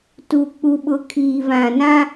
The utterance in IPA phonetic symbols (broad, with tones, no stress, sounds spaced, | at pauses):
t u˨ k͡p u˨ ɓ ʊ˨ kʰ iː˨ v ã˨ n ã˦